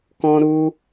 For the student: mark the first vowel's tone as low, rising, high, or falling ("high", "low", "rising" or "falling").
high